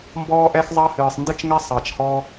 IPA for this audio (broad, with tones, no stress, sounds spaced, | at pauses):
m b ɔː˧ ʔ ɛ˧ x zˤ ɑ˧ h ɨː˨ sˤ n d ɨ˧ t͡ʃ ŋ ɛ˧ sˤ ɑ˨ t͡ʃ h ɔː˧